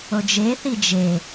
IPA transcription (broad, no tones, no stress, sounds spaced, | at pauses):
o d͡ʒ e θ i d͡ʒ e